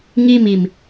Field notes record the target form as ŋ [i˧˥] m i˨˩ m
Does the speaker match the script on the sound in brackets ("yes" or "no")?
no